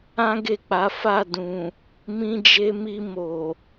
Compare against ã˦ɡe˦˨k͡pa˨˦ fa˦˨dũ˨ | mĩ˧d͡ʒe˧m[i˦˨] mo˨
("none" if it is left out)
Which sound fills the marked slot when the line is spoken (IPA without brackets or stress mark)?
i˧